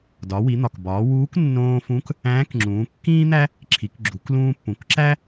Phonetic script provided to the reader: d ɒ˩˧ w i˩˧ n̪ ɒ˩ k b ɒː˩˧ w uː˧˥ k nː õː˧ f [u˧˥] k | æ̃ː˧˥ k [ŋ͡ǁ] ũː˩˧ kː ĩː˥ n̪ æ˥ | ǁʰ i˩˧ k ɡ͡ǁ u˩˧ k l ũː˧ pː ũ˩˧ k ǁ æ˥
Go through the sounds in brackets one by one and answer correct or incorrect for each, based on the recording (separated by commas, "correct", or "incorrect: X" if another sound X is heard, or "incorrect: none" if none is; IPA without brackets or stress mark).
incorrect: ũ˧˥, correct